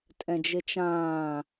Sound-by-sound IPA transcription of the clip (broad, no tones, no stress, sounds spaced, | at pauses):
tʼ ɛ̃ d͡ʒ ɪ t͡ʃ ãː